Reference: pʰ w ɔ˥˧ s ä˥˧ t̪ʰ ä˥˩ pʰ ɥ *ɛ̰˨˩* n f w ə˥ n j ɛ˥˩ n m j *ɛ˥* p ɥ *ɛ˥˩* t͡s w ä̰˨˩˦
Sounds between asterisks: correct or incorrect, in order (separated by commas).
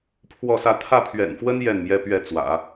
correct, correct, correct